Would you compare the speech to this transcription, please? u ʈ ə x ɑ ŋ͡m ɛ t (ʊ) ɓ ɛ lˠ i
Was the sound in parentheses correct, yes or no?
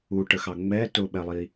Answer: yes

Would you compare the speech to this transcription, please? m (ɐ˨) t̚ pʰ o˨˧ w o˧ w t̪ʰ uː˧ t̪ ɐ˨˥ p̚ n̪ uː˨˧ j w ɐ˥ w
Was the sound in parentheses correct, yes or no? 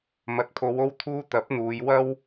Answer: yes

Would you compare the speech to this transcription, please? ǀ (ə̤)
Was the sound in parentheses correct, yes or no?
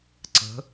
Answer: yes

